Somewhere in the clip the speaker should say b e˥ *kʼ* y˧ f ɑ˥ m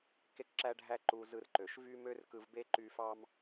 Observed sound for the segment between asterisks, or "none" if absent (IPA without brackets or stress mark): ǃ